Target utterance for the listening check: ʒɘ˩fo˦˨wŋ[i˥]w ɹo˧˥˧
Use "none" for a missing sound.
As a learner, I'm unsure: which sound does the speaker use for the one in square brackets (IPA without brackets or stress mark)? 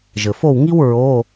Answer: i˥